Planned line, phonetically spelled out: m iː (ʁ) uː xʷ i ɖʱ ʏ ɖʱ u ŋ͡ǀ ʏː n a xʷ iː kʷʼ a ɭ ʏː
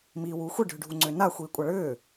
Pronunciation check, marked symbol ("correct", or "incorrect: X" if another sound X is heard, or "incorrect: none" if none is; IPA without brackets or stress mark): incorrect: w